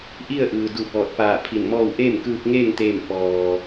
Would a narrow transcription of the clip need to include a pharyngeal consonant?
no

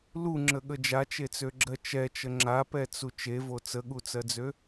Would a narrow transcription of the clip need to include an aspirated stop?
no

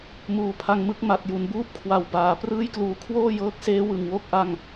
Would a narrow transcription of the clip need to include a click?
no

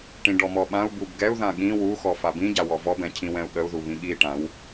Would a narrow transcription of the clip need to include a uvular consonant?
no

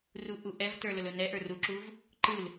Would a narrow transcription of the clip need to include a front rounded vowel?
no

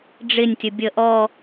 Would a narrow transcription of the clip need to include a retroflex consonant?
yes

